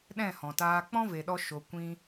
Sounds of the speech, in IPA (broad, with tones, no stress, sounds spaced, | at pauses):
ɗ ɛ̃˦˨ h ɔ̃˨ t aː˧ k͡p ɔ̃˦ v e˨ ɗ ɔ˧ ʃ o˨ kʷ ĩ˧